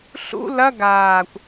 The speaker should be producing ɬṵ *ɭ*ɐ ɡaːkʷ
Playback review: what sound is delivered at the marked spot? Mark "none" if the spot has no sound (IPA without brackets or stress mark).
l